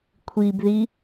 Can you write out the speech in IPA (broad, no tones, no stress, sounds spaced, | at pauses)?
kʷʰ i b ð i